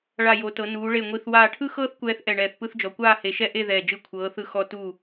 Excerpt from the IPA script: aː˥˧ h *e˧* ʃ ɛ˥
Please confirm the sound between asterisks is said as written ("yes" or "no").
yes